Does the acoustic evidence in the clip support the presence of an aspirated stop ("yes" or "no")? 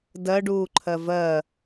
yes